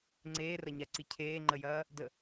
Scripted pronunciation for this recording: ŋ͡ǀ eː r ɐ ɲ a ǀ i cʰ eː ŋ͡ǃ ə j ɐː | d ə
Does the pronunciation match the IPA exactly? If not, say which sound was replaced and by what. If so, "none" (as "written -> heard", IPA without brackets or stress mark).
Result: none